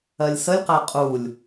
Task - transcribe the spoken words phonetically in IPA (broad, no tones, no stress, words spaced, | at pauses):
ɜlʲsəlʲqæ qʼulʲ